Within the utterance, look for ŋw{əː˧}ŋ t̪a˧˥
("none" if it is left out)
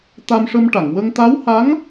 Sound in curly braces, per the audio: ə˧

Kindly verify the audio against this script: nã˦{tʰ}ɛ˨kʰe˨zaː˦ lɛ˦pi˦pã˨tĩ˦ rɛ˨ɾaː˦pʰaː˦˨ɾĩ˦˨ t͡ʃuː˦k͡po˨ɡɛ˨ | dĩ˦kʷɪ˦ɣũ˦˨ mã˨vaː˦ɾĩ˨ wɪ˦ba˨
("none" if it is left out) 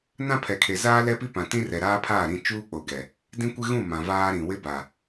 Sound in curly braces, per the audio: pʰ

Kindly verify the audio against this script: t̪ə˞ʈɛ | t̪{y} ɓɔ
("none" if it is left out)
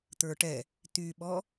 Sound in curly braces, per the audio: y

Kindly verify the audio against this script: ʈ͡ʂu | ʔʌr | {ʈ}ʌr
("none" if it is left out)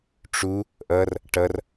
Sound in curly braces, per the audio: ʈ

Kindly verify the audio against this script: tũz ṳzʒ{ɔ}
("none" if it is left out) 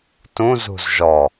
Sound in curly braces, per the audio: ɔ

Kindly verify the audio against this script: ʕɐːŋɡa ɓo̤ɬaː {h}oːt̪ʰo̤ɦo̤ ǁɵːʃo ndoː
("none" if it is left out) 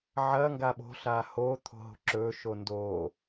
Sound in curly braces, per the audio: h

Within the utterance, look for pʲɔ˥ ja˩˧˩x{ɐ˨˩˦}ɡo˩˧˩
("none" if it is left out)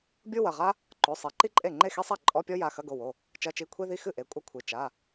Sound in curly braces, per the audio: ɐ˧˥˧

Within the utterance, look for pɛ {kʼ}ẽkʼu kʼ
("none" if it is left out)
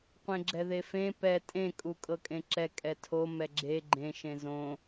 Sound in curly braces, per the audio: tʼ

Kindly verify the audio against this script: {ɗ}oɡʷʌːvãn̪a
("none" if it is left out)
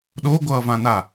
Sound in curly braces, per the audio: ɗ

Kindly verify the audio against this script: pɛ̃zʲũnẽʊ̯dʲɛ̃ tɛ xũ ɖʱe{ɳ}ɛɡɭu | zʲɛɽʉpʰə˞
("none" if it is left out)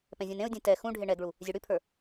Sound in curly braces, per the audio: ɳ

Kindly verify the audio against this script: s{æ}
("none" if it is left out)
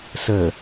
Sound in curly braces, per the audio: ə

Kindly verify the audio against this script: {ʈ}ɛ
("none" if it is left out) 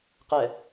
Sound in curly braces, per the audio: q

